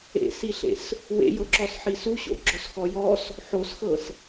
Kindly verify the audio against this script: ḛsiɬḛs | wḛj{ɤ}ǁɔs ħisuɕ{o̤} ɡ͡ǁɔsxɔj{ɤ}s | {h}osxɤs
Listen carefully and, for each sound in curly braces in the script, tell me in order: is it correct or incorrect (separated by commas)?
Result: correct, incorrect, incorrect, incorrect